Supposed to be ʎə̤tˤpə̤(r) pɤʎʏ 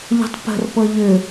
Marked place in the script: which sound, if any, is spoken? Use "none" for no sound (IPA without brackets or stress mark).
r